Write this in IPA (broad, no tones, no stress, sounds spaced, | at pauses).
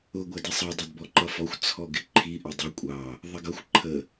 ʊ ɡʷ æ d i sˤ ɑ dˤ ʊ d b ɔ ǃ ʌ f ɔ xʷ t͡sʰ ɔ ɡ ɪ ǃʰ i ʔ ə dˤ i kʷʼ ɑ | ðˤ ɪ ɡ ʌ xʷ ǃʰ ə